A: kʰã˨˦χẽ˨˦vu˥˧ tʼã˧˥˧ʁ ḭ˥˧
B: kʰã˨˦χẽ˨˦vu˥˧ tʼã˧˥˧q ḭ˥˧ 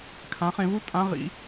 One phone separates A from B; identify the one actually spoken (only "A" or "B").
A